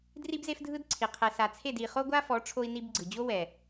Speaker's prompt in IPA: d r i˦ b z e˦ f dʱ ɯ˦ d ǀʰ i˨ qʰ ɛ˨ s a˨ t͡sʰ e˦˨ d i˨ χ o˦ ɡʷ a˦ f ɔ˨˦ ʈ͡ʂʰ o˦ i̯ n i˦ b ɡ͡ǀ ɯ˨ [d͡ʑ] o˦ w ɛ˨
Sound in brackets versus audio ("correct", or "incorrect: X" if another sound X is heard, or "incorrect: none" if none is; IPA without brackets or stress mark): correct